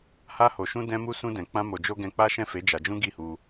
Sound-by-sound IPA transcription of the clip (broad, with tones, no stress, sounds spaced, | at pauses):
h a˧ h o˨ ʃ ũ˧ d ɛ̃˧ m u˧ s ũ˧ d ɛ̃˨ k͡p ã˧ m o˨ d͡ʒ o˧ ɡ ɛ̃˧ k͡p a˦ ʃ ɛ̃˦˨ f e˨˦ d͡ʒ a˧ d͡ʒ ũ˦ ɡ i˦˨ h u˧